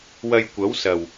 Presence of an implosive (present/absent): absent